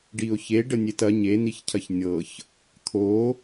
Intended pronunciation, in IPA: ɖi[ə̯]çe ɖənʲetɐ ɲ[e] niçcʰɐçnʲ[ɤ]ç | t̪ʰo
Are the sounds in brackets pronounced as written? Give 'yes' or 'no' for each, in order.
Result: no, yes, yes

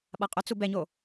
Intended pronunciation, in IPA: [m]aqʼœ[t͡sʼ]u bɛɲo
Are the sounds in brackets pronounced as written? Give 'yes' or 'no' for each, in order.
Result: no, no

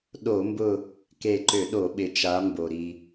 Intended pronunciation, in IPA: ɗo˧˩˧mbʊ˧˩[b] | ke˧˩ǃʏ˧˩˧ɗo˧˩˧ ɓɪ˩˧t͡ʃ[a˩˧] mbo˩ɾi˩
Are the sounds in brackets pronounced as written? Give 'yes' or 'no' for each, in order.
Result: no, yes

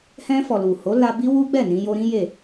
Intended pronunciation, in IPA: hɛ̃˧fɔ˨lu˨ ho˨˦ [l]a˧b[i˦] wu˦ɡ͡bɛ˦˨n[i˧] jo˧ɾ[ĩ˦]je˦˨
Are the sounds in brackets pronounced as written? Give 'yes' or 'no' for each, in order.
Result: yes, yes, no, yes

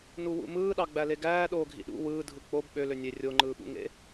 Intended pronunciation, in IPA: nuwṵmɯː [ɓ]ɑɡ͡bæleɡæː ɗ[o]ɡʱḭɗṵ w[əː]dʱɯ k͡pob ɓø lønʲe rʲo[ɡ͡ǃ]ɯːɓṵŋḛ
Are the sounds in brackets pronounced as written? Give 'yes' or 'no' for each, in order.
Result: no, no, no, no

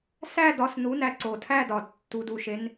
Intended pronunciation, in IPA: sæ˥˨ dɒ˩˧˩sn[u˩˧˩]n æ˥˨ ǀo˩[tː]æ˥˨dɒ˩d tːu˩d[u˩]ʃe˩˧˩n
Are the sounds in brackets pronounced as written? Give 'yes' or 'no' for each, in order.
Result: yes, no, yes

